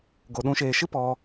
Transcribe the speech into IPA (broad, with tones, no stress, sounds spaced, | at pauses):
ɡ o˨ ɗ ũ˨˦ ʃ eː˨ ʃ ɨ˦ p ɔ˧